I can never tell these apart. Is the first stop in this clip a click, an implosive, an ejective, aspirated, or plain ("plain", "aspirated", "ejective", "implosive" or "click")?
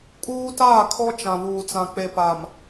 ejective